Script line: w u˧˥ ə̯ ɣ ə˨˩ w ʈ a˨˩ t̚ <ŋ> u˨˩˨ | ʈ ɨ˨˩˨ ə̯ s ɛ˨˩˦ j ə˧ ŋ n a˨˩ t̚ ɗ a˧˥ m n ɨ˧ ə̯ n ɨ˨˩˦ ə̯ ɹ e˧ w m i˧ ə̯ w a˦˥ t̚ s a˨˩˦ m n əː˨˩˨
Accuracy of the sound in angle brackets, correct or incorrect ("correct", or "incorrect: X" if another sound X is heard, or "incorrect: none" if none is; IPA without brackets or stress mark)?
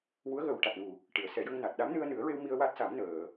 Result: correct